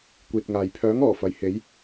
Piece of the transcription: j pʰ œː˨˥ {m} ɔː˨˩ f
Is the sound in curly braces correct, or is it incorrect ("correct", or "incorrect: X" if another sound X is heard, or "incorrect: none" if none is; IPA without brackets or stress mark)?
incorrect: ŋ